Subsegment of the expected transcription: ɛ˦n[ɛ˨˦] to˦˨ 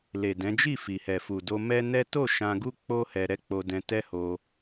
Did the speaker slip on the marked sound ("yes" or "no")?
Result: yes